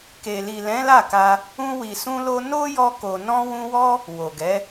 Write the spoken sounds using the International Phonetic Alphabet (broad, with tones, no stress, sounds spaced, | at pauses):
k e˨ l i˨ l ɛ̃˨˦ l a˦˨ k a˧ | ũ˧ w i˨ s ũ˧ l o˧ n o˦ j ɔ˧ k o˨ n ɔ̃˧ w ũ˧ w ɔ˦ | w o˨ ɡ ɛ˨˦